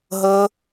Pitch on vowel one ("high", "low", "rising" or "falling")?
high